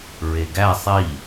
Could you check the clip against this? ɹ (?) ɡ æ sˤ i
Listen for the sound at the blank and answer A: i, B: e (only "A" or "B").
B